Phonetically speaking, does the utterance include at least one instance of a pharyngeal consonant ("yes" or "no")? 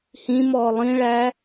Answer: no